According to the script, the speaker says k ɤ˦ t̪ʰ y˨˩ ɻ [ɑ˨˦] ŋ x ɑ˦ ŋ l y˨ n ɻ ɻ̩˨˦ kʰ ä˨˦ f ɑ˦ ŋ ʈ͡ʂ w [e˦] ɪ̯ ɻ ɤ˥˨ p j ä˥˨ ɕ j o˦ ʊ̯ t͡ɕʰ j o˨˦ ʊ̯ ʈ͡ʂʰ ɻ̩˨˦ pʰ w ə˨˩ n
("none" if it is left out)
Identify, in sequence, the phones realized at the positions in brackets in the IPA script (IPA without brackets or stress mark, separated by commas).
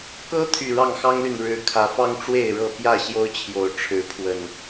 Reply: ɑ˥˨, e˥˨